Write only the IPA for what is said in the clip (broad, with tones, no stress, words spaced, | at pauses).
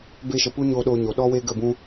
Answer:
be˧ʃə˨ pu˦ɲoː˧ɗoː˧ ɲo˨ɗɔ˦weː˦ ɡə˦˨bũ˦